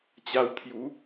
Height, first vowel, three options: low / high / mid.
low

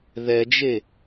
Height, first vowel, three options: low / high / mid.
mid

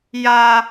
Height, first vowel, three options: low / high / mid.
low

